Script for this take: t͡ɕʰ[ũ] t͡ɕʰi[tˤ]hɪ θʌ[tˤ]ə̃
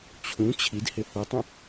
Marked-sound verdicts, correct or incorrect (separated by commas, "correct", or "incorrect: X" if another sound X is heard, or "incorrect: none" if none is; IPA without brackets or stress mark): correct, incorrect: d, correct